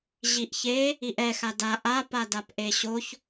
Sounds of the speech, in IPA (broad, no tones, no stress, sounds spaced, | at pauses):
ʑ i ʔ ç e | i ʔ ɛ x a d a ʔ a p a d a p ʔ e ɕ o ç